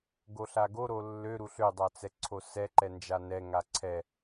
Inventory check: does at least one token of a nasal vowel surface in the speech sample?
no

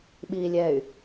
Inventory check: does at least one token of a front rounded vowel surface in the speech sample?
yes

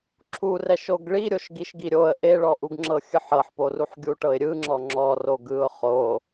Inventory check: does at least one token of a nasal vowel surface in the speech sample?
no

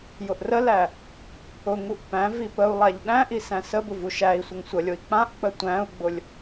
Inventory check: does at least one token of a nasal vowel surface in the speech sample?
yes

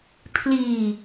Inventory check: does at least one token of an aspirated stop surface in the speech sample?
yes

